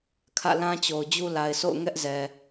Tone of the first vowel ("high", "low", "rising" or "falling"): falling